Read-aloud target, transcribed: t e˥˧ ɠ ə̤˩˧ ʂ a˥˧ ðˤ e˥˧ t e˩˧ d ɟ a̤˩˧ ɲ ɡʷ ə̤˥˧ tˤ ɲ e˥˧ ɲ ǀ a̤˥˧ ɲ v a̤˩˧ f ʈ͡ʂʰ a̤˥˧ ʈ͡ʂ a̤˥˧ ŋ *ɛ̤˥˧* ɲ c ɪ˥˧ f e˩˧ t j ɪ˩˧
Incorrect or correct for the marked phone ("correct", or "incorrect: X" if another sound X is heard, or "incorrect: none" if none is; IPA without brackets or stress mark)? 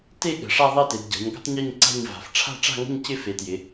incorrect: ə̤˥˧